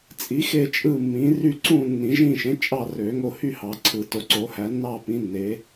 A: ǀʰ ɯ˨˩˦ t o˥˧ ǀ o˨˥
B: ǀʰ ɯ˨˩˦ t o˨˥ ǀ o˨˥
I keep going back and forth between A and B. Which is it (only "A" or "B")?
B